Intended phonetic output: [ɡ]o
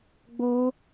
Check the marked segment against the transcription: incorrect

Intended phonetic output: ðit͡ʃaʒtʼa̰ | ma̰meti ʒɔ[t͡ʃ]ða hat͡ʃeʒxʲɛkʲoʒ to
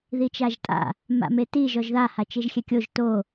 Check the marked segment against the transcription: incorrect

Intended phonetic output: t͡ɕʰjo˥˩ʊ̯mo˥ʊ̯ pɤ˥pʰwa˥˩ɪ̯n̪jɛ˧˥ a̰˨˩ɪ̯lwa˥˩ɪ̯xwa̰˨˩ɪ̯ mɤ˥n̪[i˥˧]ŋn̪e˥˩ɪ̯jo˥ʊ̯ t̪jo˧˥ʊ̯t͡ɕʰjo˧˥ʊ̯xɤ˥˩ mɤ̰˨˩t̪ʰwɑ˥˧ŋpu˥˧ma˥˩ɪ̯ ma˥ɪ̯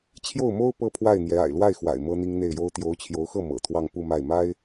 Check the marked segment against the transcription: incorrect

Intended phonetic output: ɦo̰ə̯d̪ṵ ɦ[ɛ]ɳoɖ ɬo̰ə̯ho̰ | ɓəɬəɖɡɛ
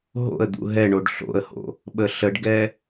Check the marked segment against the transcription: correct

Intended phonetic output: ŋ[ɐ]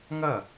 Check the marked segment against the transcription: correct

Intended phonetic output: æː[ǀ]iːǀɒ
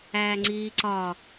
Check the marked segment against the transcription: incorrect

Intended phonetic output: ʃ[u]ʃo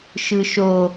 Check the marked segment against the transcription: incorrect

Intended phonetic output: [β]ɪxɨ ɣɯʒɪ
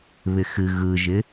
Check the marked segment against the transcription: correct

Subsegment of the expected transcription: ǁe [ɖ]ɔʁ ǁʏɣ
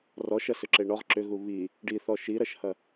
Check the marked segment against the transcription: incorrect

